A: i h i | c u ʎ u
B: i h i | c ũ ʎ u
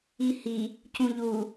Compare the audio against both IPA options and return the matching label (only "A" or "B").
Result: B